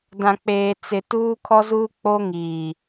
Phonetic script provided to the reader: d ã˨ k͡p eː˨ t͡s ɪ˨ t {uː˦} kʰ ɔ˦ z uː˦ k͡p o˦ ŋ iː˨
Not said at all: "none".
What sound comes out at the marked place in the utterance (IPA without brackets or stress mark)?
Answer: uː˦